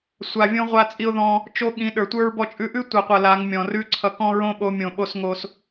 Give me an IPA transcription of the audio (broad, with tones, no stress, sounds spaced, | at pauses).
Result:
sʷ a˧ vʲ õ˦ ʁʷ a˧ t͡sʼ i˧ ʊ̯ ð ɔ̃˧ | t͡ʃ o˦ ɠ ĩ˨˦ ɗ ə˞˨ tʷ ə˞˦ ɹ b ɔ˧ t͡ʃʼ ʉ˧ ʔ ʉ˦ tʷ ʌ˨ qʷ ʌ˨ l a˨˦ ŋ mʲ ɔ̃˨ r ʉ˦ ǀʰ ʌ˧ k ɔ̃˦ ɹ õ˦ ɓ o˨˦ mʲ õ˨ ɓ o˧ s ŋ o˦ s